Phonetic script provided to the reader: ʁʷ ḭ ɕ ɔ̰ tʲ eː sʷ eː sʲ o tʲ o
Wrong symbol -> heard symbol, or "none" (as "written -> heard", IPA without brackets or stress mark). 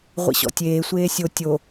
none